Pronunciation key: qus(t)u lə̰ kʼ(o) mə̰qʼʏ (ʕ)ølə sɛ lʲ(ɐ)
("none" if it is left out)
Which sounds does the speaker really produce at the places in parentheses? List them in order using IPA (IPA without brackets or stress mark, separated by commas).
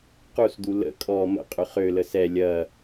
d̪, ɔ, χ, ɐ